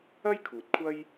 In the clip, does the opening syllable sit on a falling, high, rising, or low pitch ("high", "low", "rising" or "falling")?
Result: high